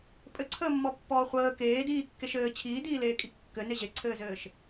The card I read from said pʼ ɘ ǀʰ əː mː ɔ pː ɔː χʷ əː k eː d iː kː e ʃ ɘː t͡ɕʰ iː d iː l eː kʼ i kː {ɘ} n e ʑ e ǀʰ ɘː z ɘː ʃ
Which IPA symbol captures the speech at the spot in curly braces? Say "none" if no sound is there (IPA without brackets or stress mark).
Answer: ɘ